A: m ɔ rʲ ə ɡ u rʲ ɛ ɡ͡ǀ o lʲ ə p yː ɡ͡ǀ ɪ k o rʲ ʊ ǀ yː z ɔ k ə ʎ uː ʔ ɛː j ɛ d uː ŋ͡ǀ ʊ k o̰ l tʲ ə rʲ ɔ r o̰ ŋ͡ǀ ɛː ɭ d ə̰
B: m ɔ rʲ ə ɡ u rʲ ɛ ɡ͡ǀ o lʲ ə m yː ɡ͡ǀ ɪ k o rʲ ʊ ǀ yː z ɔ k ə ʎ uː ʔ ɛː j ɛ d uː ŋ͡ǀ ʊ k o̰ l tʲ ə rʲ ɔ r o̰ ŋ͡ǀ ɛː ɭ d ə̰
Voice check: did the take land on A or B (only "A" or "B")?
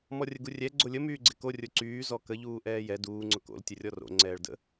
B